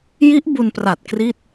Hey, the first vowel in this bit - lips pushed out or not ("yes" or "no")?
no